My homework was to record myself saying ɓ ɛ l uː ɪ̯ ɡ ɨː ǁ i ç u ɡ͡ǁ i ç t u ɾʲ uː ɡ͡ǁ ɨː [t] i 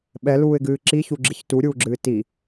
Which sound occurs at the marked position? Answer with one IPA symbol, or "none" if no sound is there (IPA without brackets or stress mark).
t